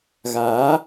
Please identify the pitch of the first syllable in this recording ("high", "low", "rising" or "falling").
rising